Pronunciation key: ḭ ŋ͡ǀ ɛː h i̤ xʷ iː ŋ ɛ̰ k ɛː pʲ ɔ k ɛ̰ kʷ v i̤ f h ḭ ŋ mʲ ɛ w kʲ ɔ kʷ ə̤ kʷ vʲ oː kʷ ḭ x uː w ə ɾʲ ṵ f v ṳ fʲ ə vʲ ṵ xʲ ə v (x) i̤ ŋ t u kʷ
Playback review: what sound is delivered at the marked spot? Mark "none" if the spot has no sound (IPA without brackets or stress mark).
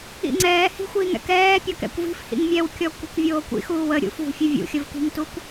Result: k